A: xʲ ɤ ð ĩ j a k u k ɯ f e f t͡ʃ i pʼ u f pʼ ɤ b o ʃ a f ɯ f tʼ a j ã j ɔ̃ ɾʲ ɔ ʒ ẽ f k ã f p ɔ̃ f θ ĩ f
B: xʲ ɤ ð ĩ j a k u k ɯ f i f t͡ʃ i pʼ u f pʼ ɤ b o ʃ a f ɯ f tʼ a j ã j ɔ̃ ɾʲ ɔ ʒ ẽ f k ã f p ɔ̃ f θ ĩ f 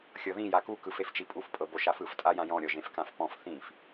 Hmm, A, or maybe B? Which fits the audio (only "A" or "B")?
A